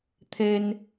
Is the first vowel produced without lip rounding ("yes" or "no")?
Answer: yes